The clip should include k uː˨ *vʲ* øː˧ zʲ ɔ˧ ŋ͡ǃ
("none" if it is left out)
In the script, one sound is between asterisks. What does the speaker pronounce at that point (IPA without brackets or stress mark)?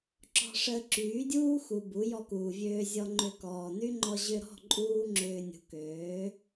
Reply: vʲ